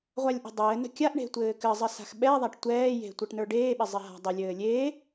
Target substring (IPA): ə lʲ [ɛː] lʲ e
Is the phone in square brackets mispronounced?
yes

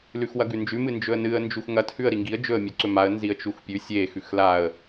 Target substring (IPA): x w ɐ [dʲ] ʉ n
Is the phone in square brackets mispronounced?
yes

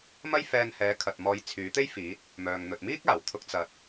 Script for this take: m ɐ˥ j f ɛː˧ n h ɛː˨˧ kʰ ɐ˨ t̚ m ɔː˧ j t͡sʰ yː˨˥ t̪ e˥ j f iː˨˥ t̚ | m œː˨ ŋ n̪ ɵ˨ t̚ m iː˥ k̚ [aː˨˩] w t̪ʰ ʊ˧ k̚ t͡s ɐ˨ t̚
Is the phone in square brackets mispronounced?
no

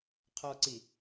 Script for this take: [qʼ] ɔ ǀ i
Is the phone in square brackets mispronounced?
yes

